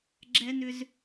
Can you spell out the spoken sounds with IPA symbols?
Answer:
ɡ͡ǁ ɛ˦ n ʏ˦ z

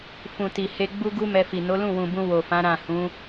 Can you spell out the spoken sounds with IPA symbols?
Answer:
f ũ˨ t i˨ h e˧ ɡ͡b u˦ ɡ u˦ m ɛ˧ f i˨ n o˨˦ l ũ˦˨ w ũ˨ b ũ˧ w o˨ f ã˨˦ ɾ ã˦˨ h ũ˨˦

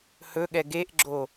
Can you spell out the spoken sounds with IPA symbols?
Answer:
h ɵ ɠ ɛ ɡ e ʔ ɡ͡ǁ o

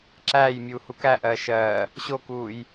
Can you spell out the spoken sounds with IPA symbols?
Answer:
ǁ æː j mʲ uː h u k æ ʔ ɜː ʃ ɜː | ɕ o k uː j

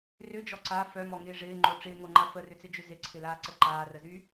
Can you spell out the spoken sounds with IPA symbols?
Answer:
r ʏ d͡ʒ ɔ ǀ a f œ m ɔ ŋ ɪː ʐ ɪː ŋ͡ǃ o ʈ͡ʂ ɪː ŋ o ŋ͡ǃ a f ə r ʏ t͡s ɪ d͡ʒ ʏ z ɪ ǀʰ ɪ l aː ǀ ə ǃ aː r ə z y

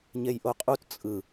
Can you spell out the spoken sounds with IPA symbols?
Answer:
ɲ e j ʔ o qʼ u t t͡sʼ ɯ

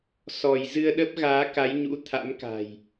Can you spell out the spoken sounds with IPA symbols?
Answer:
s ɔ˧˩ j z ɨ˧ ə̯ ɗ ə˦˥ p̚ ɣ aː˨˦ k a˨˦ j ɲ ṵ˧˥ t̪ʰ a̰˧˥ m k a̤˨˩ j

